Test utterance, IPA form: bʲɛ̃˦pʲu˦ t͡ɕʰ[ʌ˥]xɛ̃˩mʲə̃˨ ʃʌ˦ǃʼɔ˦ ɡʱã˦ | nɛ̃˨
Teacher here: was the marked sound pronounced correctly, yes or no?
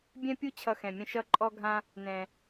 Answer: no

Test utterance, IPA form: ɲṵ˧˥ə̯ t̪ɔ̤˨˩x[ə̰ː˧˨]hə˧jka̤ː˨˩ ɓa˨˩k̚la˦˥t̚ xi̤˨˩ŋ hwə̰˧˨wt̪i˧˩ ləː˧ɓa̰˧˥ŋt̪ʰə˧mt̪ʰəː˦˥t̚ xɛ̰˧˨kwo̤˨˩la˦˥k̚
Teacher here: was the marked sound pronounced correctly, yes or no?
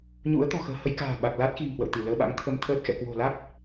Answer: no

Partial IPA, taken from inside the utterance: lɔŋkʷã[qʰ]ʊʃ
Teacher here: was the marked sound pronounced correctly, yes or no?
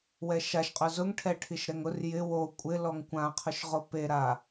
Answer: yes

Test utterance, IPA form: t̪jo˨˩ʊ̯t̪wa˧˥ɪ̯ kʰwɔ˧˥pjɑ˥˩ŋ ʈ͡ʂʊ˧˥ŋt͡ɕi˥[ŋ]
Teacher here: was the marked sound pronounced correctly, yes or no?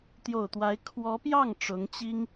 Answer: yes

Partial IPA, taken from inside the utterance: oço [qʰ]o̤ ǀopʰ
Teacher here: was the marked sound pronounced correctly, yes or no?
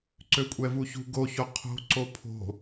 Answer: yes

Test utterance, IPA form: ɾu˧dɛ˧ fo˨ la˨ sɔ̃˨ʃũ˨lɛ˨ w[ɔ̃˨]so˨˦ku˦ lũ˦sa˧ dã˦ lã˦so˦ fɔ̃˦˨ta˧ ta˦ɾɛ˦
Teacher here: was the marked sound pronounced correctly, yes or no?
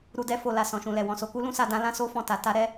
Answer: yes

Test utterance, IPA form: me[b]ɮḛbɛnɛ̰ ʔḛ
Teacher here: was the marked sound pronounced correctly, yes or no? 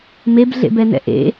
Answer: yes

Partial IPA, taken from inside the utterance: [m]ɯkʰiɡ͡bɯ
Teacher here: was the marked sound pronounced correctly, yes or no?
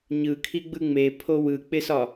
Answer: no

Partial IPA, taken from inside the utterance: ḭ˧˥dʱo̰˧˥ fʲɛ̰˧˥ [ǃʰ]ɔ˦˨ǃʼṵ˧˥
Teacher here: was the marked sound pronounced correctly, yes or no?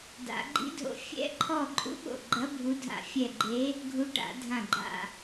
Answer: yes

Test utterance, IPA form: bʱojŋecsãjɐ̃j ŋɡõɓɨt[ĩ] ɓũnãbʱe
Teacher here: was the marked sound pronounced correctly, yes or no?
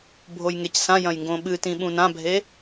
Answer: yes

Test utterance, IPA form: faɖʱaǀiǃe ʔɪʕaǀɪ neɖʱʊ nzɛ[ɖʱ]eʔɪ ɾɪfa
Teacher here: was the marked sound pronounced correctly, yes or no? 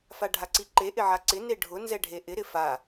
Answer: yes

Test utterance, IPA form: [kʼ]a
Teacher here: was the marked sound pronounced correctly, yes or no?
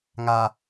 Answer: no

